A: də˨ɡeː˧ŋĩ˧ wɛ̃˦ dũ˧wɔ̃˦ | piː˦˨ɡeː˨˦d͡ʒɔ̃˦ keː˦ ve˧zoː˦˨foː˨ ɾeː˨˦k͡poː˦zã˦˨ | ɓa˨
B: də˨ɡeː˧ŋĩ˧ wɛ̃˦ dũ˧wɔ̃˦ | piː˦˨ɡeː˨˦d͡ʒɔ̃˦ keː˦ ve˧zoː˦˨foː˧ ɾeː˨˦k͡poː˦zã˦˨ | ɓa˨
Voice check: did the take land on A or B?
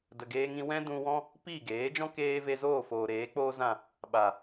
A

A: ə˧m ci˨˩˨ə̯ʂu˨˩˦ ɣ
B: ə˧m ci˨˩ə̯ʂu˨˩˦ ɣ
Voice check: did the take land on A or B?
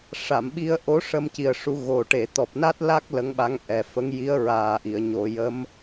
B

